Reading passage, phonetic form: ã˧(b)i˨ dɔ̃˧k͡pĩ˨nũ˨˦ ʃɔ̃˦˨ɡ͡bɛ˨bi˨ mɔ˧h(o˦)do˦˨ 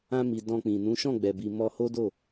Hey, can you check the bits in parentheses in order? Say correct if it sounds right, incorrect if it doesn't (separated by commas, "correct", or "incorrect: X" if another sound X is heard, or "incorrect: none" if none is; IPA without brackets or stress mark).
incorrect: m, correct